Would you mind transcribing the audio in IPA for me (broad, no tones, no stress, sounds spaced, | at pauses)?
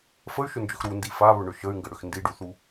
f ə y̯ ʃ ʏ n d͡ʒ ʏ x ɾ u n d i f a β ʏ ɳ ʏ ʃ ə y̯ ŋ ɡ ə ɽ ʏ x n d i ɖ u θ u